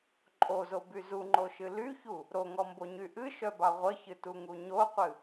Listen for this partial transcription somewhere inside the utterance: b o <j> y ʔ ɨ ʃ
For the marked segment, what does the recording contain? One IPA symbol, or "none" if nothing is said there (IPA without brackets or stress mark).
ɲ